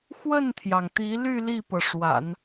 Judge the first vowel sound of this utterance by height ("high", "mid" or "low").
mid